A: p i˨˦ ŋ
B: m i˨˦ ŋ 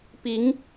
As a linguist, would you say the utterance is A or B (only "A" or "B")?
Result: A